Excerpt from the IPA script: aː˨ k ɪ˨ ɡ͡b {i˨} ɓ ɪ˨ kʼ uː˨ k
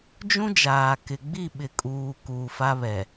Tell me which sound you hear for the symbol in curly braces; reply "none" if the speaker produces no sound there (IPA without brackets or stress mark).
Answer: i˦˨